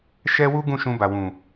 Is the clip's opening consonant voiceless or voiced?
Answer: voiceless